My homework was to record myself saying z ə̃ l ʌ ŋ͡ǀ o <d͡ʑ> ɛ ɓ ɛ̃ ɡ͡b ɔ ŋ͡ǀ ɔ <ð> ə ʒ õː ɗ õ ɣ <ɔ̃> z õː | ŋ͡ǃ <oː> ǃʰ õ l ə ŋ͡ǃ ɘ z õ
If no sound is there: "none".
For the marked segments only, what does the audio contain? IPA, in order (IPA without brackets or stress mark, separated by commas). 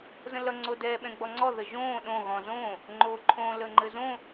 d, ð, ɔ̃, oː